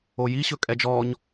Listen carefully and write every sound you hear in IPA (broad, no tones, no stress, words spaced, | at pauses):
oji ɕɵkʼɛd͡ʒɔɲ